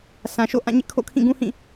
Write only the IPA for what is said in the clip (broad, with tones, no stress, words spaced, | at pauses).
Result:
sʰã˨ʃo̰˦˨ ʔã˦˨ɲɪ˦ʔkʰo̰˦˨ kʰĩ˦˨ɡũ˦hĩ˦˨